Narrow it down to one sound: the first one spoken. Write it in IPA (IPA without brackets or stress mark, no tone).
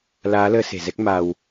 l